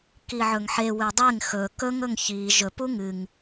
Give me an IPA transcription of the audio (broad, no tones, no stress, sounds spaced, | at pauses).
k i ʕ ɵ ŋ ħ e w e dˤ e ŋ x ɵ k ɵ ŋ ɵ ŋ ç i ʒ ɵ p u ŋ ɨ ŋ